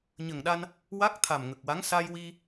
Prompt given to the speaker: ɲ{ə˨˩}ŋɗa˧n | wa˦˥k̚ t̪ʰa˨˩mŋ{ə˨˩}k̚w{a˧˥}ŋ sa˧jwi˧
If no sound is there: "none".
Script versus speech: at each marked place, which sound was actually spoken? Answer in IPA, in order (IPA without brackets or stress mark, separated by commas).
ə˨˩, ə˨˩, a˧˥